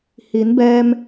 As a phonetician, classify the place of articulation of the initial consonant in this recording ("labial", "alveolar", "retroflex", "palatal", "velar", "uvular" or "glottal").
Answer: glottal